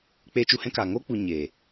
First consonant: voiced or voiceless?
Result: voiceless